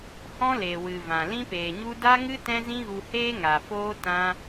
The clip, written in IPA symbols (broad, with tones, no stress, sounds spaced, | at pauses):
h ɔ̃˦ l e˨ w ɨ˨ v ã˨ l ĩ˦ p eː˨ ɲ u˦ d a˦ ŋ ɨ˦ t ɛ̃˦ z ĩ˦ ɣ u˧ h eː˦ ŋ a˨ f oː˦ t ã˦